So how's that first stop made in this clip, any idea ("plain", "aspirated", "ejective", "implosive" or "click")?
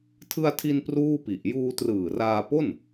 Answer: aspirated